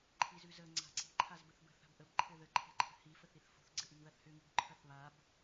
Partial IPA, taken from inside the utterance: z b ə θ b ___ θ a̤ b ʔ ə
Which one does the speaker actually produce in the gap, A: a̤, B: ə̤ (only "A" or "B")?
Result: B